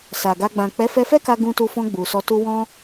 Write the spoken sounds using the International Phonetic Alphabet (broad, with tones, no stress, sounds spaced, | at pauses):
s a˨ ɡ a˧ ɡ͡b ã˨ k͡p ɛ˨˦ f ɛ˧ f ɛ˦ k a˧ ɡ ũ˧ t u˧ f ɔ̃˧ ɡ͡b u˨ s ɔ˧ t u˦ w ɔ̃˦